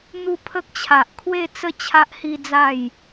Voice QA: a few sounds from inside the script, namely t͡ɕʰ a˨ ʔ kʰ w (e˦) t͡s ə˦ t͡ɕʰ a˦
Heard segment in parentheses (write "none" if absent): e˥˧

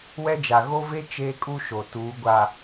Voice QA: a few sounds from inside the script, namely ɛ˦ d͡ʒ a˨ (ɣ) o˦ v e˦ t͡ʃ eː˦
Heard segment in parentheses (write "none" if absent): ɣ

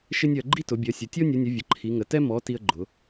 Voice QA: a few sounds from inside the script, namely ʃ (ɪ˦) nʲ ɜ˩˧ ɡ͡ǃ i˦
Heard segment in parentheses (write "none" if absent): ɪ˦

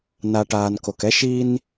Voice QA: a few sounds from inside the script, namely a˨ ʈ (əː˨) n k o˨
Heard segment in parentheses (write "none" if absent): aː˨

